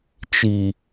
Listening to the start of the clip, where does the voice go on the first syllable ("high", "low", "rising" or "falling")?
low